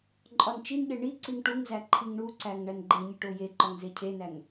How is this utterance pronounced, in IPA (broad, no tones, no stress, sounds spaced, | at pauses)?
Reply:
ǃʼ ɒ n t͡ʃ i n ɠ e ɳ i ǀ i ŋ ʈ u ŋ z æ ǃʰ i ŋ ɳ u ǀ æ ŋ ɳ æ n ɡ͡ǃ e ɲ i ʈ o j e ǃ ɒ ŋ z e cʰ e n æ ŋ